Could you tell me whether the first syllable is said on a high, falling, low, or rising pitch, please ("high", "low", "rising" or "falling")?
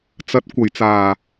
low